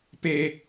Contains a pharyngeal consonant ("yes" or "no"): no